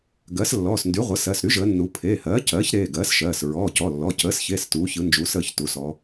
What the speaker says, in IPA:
ɡ ɜ˩˥ s lː ɔː˩˧˩ s n d y˩˥ ʁʷ ə˩˥ s ɜ˩˧˩ s ɾ y˩˥ ʒ əː˩˧ nː u˩˧ pʰ eː˩˧˩ h ɜː˩˥ c ɜː˩˥ ç ɾ eː˩˧˩ ɡ ɜː˩˥ s ʃ ɜː˩˧˩ s ɹ ɔː˩˧˩ c ɔ˩˧˩ lː ɔ˩˧˩ c əː˩˥ s ç e˩˧˩ s t uː˩˧ ç ɯ˩˥ n d͡ʒ uː˩˥ s əː˩˧˩ ç t u˩˧˩ s ɔ˩˧

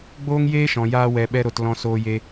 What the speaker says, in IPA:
ɡ͡b oː˦ ŋ j eː˦ ʃ ɔ̃˨ j aː˧ w ɛ˧ ɓ ɛ˦ ɾ o˧ t l ɔ̃˧ s oː˧ j e˧

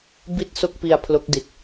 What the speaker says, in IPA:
b i˥˩ t̚ s o˥˩ k̚ p i˧ a̯ pʰ l o˦˥ k̚ d i˨˩ t̚

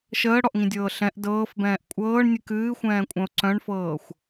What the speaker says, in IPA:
ʃ əː ɽ ɔ ʔ ŋ ĩ dʲ ɤː ɬ ɛ̃ ʔ d ɤː f b ɛ̃ː ʔ kʷʼ ɤː ɳ nʲ ɨ k ɨː xʷ ɛ̃ː kʷʼ œ̃ ʊ̯ ǀ œ̃ ɳ f ɤː xʷ

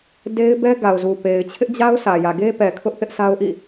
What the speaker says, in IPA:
d e˦ ɪ̯ b ɛ˦ ɡ a˨ ʊ̯ z u˨ p e˨ ɪ̯ t͡ɕʰ ɪ˦ ʔ d͡ʑ a˦ ʊ̯ s ä˨ j ä˨ ɡ e˦ p ɛ˨ kʰ ʊ˦ ʔ θ ɪ˦ ʔ s a˦ ʊ̯ ʔ ḭ˦˨

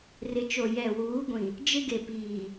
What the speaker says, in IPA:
r ɪ˨ t͡ʃ o˨ j ɛ˨ w uː˨˦ ɡʷ ĩ˨ | d͡ʒ ɪ˦ ɡ e˨ p iː˨

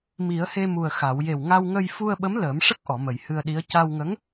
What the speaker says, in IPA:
m i˨˩˦ ə̯ h e˧ m u˨˩ ə̯ x a˨˩˨ w j e˨˩ w ŋ a˧ w ŋ ə˧ j f u˧ ə̯ ɓ ə˧˥ m l əː˨˩˦ m ʂ ə˦˥ k̚ ʔ ɔ˨˩˨ m ə˨˩ j h ɨ˧ ə̯ ɗ i˧˥ ə̯ c a˧ w ŋ ə˧˥ ŋ

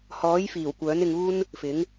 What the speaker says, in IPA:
h ɔː˨˥ j f iː˨˩ w kʷ œː˨˥ n ɪ˧ ŋ uː˥ n | f ɪ˨˥ ŋ

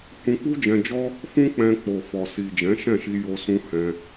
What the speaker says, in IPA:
h ũ˧ k͡p u˦ d͡ʒ ɛ̃˧ d͡ʒ ɔ˦ | f ũ˦ k͡p ɛ̃˧ k͡p o˨ f ɔ˨ s i˨ d͡ʒ ɛ̃˨˦ ʃ ɛ̃˦˨ ʃ i˧ j o˧ s ũ˧ h ɛ̃˧

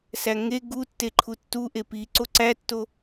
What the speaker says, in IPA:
s æ ŋ e ɡ u tː e ǃʰ u tː u ʔ e p i ǀ o ǀ æ tː o

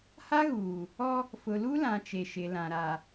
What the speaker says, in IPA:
h a˦ ɣ uː˨ | ɔ˦ | f ʊ˨ l u˦ l ã˨ t͡ʃ e˨ ʃ ɪ˨ l ã˨ ɾ a˨

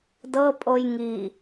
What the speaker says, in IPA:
d ɤ pʼ o j ŋ i

